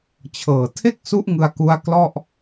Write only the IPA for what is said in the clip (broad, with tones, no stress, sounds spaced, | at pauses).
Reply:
t͡ɕʰ ɤː˨˩ tʰ e˥˩ k̚ s u˦˥ ʔ ŋ ɯ˧ a̯ k u˦˥ a̯ k l ɔ˥˩ ʔ